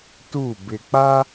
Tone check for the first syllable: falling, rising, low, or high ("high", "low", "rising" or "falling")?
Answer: falling